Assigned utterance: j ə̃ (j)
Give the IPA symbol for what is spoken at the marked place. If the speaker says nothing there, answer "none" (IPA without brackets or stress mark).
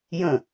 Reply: none